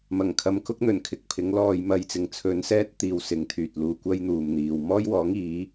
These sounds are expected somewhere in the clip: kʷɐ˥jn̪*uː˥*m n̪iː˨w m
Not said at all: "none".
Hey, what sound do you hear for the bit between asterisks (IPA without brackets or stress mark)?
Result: uː˨